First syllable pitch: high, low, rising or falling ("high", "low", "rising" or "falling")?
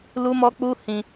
high